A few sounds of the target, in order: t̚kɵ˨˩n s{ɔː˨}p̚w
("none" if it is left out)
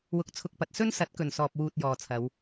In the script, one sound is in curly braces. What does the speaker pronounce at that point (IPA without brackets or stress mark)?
ɔː˨